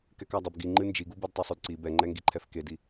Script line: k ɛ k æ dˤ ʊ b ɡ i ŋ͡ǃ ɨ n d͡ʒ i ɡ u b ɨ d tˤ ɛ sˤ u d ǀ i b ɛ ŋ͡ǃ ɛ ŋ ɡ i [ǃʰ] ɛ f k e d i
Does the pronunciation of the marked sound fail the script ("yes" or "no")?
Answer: no